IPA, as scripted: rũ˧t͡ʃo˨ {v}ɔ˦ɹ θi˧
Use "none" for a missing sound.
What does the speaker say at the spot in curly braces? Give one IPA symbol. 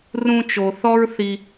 θ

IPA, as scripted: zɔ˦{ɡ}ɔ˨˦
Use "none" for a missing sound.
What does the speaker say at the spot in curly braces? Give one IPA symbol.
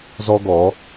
ɡ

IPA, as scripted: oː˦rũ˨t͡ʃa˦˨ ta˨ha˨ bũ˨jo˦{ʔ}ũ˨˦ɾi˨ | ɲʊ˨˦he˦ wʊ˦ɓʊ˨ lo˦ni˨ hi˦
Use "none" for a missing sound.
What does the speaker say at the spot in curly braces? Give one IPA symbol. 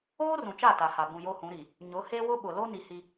h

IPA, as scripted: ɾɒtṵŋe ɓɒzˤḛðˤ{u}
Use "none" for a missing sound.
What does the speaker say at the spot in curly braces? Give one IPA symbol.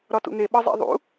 ṵ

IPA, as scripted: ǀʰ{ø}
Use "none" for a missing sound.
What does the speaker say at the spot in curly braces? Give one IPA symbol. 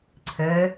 ɘ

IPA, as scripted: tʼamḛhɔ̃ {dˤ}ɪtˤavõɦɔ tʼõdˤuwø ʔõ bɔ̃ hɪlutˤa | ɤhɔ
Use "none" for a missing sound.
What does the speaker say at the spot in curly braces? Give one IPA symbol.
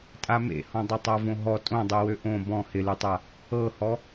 dˤ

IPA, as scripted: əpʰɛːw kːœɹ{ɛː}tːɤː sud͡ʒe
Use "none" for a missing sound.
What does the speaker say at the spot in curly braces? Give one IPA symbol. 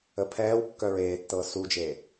eː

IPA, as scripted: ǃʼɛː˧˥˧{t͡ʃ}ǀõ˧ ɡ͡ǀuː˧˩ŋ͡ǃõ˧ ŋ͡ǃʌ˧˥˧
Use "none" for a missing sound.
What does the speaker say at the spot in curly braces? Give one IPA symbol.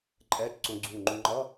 t͡ʃ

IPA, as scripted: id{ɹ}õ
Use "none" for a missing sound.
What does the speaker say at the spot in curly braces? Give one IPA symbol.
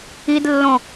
lː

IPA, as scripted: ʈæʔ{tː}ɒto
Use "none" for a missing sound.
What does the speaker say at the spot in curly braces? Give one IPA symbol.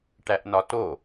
n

